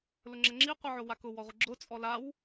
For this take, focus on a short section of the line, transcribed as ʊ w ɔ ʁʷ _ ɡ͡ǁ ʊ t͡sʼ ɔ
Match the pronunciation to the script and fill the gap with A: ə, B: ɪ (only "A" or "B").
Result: B